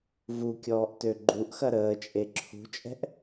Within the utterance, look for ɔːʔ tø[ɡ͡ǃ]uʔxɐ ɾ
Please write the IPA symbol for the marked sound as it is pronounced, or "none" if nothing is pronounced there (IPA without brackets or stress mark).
ɡ͡ǃ